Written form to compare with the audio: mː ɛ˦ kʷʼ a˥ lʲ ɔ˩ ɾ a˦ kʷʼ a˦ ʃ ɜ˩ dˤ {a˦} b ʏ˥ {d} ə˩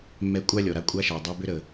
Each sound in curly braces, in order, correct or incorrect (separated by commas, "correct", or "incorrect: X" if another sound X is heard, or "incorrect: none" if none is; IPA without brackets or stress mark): correct, incorrect: ɾ